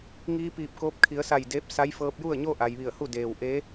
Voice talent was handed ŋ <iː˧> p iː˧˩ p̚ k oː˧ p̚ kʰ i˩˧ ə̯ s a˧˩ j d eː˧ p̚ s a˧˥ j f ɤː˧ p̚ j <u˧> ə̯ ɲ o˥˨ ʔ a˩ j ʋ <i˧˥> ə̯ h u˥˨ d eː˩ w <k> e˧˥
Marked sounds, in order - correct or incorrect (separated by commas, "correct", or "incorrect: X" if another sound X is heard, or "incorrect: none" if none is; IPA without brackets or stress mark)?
correct, incorrect: u˥˨, incorrect: i˧˩, incorrect: ʔ